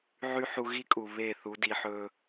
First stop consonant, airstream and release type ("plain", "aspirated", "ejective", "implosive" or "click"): ejective